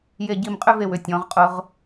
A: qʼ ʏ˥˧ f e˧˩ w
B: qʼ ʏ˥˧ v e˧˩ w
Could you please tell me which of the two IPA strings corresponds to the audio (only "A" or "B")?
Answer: B